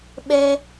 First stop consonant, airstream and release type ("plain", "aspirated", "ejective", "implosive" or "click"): implosive